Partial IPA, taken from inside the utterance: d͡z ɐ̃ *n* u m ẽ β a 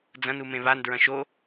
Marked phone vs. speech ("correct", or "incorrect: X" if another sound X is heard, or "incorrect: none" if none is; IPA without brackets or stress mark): correct